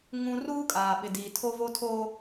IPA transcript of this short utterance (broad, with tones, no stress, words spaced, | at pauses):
ŋũ˦ ruː˦kʼaː˨ɓɪ˨diː˨ tʰo˦vo˦ tʰoː˦